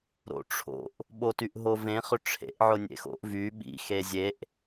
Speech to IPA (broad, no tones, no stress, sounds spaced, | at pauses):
ɾ o̰ ʈ͡ʂʰ o̰ ʔ | ɓ o t y ʔ ɦ o v ẽ χ ʏ ʈ͡ʂʰ ḛ ʔ ʕ ʊ nʲ ḛ x o̰ ʔ v y ɓ ḭ x e zʲ e ʔ